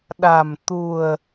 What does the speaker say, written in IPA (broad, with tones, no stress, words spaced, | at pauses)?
ɗa̤˨˩m t̪ṳ˨˩ə̯